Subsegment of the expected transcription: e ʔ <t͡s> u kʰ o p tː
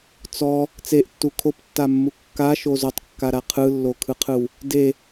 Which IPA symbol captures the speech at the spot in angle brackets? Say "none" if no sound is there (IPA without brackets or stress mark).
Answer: tː